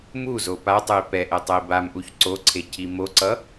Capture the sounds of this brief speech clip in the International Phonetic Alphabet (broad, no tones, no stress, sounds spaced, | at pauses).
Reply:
m u z o p a tˤ ɯ i̯ p ɛ ʔ ɛ tˤ ʌ i̯ b a m ʔ u ç ǀ o ǀʰ e cʰ i m o ǀ ʌ